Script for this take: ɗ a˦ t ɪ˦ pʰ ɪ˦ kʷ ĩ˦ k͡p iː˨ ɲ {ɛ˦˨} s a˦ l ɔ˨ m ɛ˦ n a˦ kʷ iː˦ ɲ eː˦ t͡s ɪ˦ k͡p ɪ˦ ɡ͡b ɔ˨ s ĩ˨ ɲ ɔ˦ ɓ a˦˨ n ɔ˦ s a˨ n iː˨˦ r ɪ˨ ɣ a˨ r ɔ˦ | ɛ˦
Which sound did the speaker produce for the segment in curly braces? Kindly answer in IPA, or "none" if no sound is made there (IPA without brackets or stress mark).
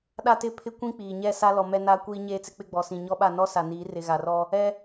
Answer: ɛ˦˨